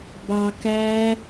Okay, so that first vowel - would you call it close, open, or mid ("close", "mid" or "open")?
open